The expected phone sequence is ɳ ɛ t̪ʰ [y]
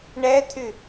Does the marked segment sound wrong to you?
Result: no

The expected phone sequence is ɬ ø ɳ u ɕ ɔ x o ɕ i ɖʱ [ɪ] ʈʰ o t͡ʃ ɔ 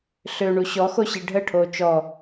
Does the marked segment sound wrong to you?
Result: yes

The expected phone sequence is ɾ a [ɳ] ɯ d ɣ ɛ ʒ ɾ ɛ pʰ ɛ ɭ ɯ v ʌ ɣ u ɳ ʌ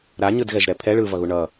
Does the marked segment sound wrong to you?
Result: yes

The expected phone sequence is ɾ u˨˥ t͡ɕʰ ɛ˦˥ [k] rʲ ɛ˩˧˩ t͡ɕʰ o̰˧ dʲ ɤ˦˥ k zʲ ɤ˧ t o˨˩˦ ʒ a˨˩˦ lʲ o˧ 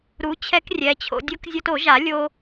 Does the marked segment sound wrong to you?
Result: no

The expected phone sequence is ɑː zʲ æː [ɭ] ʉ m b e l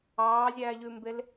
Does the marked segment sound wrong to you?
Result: yes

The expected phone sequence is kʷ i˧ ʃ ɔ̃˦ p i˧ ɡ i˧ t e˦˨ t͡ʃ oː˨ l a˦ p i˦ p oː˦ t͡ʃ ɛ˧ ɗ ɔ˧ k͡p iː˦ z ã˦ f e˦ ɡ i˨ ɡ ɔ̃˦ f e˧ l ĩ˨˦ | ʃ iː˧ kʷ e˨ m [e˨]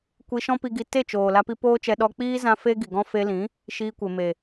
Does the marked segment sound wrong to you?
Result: no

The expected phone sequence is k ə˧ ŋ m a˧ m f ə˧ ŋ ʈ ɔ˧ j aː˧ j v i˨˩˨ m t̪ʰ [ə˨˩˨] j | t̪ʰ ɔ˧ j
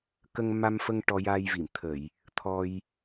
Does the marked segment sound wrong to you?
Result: no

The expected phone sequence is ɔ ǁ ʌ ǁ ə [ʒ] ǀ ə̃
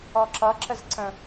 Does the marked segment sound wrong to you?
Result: yes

